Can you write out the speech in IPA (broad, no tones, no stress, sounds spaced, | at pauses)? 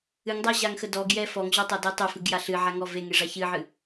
ɨ ŋ dˤ a ʑ a ŋ x ə d ɔ ɡ j ɛ f ɔ ŋ ʑ ɔ tˤ a d e tˤ œ f ɨ ɡ j a ɬ ɨ ʕ a ŋ ɔ v e ŋ e ʐ a ç ɨ ʕ ɨ